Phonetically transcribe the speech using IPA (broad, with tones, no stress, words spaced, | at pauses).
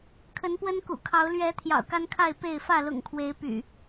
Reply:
kʰə˨˦npwə˦nkṵ˨˩kʰɑ˨˦ʊ̯ lɥɛ˨˦ t̪ʰjɑ̰˨˩ʊ̯ka˦nkʰa˥˨ɪ̯ pe˥˨ɪ̯ fä˥˨lʊ̰˨˩ŋkʰwe˨˦ɪ̯ py̰˨˩